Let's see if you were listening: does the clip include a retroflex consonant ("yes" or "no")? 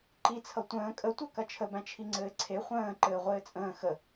no